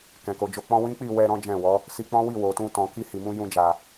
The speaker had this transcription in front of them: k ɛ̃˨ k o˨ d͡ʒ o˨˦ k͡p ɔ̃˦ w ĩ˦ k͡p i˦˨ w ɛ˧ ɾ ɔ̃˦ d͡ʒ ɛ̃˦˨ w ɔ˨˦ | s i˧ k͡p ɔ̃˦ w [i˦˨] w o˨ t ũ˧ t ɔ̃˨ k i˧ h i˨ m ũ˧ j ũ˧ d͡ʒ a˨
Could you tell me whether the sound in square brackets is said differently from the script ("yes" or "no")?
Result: no